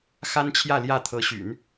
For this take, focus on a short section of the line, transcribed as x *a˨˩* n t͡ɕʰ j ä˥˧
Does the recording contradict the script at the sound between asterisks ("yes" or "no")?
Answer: yes